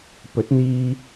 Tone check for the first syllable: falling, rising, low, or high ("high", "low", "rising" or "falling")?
rising